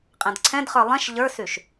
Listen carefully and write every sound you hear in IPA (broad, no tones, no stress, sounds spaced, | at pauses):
qʼ ɛ̃ d ǀʰ ɛ̃ d χ ə˞ lˠ ɛ̃ ʃ ʎ ə˞ s y ʃ